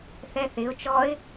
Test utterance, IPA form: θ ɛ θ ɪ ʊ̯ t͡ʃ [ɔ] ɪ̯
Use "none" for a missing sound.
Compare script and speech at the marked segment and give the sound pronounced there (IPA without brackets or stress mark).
ɔ